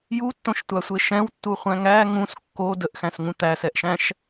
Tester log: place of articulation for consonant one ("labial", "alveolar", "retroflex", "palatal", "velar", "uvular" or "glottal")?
palatal